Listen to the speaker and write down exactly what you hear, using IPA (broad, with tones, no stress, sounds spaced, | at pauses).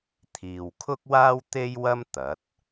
t̪ʰ iː˨ w kʰ ʊ˥ k̚ w aː˥ w t̪ e˥ j w ɐ˥ m t̪ ɐ˨˥ t̚